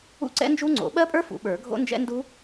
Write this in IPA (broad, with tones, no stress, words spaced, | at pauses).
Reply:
ṵ˦˥ǀɛ̰˦˥nd͡ʒu˦˥ŋ͡ǀo̰˨˩˦ ɓɜ˦˥pʼə˞˦˥ fṵ˨˩˦ɓə˞˨˩˦ ɡʱo̰˦˥ nd͡ʒɛ̰˦˥ ndu˦˥